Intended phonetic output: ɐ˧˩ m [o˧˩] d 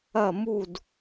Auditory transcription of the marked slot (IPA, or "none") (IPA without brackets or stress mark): u˧˩